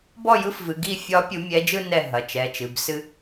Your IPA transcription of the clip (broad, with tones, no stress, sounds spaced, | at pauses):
b ɔ˥˨ j ɯ˧˥ f v ɨ˩˧˩ ɡ i˥˨ fʲ ɒ˧˥ pʲ u˧˥ mʲ ɛ˧˥ d͡ʒ ɯ˥ n ɛ˥˨ ɦ ɐ˩˧˩ t͡ʃ ɛ˩˧˩ t͡ʃ ɨ˩˧˩ b s ɨ˥